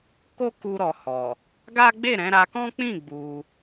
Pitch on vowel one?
high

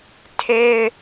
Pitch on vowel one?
high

